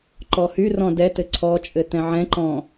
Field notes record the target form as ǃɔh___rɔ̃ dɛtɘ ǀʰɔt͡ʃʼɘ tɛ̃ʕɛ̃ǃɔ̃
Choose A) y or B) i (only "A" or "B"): A